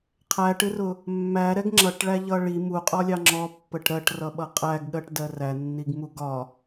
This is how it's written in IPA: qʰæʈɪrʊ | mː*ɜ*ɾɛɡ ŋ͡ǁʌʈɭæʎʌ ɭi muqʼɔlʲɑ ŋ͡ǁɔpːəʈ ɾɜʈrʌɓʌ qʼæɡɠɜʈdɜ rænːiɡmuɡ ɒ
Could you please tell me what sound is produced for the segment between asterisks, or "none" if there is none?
æ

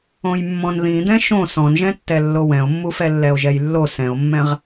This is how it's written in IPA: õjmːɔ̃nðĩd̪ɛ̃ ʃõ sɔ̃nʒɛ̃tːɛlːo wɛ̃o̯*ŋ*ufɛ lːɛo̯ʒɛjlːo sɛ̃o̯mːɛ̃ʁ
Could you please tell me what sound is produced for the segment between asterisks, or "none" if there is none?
mː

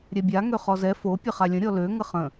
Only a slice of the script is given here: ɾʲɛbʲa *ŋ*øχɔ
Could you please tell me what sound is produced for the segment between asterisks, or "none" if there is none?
ŋ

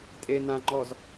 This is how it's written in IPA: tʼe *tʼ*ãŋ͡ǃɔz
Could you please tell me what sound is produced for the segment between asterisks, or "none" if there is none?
n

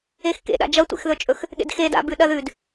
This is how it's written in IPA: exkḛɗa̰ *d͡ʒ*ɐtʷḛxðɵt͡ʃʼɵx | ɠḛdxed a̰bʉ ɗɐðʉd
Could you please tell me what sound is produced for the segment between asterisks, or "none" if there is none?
d͡ʒ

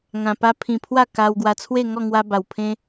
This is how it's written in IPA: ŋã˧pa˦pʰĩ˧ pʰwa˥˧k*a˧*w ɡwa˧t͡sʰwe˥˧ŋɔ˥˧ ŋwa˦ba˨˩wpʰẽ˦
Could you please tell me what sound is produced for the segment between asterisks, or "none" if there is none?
a˧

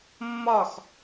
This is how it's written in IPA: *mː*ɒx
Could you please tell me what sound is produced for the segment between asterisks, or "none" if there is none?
mː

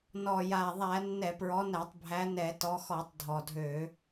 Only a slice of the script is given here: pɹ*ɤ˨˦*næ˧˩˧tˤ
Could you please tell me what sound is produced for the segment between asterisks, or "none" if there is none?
ɔ˨˦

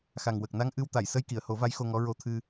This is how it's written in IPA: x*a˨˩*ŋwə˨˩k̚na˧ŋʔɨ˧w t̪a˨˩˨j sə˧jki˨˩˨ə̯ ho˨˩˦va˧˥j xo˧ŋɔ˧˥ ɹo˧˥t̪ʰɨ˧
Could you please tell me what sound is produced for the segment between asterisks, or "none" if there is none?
a˨˩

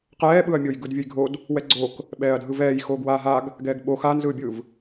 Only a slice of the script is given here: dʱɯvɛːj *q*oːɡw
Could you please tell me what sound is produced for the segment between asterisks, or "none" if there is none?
x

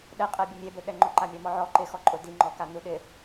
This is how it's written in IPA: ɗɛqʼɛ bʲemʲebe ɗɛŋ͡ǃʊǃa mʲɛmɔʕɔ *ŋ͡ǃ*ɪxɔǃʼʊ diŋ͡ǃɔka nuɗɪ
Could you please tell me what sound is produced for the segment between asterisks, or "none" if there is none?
ǃ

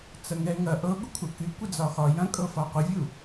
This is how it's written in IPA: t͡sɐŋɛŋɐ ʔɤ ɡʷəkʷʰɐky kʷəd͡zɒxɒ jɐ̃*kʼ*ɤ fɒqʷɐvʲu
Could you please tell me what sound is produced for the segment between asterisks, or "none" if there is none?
kʼ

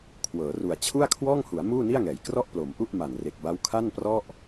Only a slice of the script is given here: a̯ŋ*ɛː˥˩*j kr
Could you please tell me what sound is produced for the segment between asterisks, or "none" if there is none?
ɛː˩˦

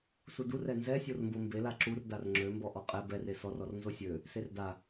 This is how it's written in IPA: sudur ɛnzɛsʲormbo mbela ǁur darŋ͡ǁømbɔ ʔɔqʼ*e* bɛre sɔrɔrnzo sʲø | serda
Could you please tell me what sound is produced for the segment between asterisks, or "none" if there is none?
ɛ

